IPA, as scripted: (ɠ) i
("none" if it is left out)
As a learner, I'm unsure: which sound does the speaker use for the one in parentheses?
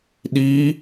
ɗ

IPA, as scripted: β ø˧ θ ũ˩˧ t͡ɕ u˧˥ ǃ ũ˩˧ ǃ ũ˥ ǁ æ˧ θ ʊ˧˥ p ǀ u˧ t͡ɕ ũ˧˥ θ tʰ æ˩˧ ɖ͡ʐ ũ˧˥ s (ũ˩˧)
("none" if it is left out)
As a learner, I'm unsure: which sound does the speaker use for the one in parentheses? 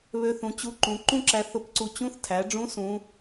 ũ˧˥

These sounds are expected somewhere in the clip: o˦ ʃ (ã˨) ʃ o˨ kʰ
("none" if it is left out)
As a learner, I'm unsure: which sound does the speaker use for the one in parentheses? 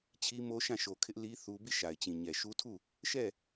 ã˦˨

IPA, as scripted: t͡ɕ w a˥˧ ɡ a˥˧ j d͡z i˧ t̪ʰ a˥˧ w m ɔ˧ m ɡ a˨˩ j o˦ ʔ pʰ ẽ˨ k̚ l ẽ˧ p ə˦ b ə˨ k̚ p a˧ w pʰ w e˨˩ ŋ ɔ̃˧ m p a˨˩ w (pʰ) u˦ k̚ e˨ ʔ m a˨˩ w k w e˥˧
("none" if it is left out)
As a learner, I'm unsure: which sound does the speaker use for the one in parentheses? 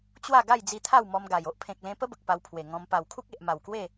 kʰ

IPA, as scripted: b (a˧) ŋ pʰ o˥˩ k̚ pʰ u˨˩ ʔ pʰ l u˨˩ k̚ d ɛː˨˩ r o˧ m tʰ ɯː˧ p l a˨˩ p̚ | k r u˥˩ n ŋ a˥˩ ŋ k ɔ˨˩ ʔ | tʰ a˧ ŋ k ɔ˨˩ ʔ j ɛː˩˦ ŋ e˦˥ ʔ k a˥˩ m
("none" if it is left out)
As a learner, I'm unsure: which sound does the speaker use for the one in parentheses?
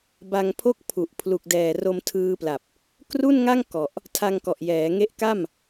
a˧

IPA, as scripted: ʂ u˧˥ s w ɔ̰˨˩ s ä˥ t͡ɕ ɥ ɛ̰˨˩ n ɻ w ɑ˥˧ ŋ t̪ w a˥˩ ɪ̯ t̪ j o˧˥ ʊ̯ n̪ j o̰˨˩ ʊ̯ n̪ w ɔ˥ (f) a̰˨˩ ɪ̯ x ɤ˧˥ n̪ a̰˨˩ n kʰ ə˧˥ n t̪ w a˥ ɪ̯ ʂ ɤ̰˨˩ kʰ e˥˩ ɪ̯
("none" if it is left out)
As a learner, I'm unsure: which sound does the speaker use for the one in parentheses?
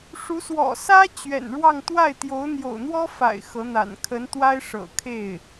f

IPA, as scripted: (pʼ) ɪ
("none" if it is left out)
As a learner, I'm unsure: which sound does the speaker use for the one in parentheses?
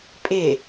pʼ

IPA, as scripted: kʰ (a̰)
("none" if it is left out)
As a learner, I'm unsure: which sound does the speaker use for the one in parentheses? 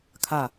a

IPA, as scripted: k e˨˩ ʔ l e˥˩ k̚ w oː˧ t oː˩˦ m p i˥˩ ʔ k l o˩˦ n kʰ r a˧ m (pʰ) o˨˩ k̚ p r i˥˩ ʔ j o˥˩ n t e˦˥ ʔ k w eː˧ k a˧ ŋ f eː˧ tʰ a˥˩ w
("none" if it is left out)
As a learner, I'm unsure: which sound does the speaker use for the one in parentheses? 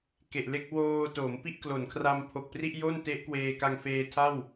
pʰ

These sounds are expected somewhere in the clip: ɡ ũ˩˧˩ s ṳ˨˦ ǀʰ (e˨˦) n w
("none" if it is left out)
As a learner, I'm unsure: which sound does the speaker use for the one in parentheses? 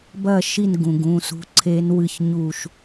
e˨˦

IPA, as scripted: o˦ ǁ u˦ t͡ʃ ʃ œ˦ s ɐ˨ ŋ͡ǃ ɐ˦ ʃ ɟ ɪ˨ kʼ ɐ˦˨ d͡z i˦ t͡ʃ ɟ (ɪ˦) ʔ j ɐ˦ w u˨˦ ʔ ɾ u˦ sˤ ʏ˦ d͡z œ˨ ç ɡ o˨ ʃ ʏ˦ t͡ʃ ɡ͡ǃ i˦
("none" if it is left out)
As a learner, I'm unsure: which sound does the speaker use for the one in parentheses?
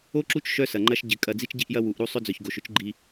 i˦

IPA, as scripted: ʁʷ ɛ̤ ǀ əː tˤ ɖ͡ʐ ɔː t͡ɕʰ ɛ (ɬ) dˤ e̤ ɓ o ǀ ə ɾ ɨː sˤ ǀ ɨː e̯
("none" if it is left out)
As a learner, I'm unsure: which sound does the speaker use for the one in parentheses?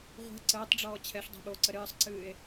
ɬ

